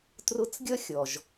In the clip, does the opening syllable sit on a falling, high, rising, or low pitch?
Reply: rising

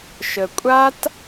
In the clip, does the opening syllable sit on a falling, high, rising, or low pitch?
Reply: low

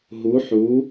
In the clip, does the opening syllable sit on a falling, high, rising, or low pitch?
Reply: rising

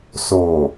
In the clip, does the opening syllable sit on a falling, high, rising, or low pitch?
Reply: low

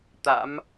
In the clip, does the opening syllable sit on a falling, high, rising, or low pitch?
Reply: rising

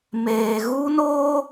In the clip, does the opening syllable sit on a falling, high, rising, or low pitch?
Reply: low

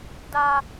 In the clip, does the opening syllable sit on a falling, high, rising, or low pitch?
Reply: high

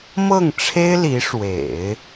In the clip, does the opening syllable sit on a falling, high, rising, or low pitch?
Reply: falling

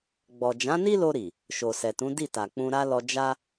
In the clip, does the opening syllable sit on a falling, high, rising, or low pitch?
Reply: low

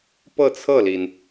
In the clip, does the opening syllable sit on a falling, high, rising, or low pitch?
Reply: falling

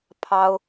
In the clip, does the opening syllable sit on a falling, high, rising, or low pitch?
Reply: high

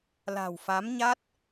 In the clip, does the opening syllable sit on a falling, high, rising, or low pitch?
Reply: low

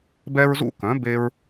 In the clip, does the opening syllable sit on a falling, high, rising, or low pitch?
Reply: high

